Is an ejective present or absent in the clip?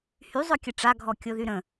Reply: absent